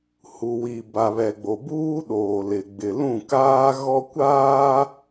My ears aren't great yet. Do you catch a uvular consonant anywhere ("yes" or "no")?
no